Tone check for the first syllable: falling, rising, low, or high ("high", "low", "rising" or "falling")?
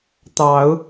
rising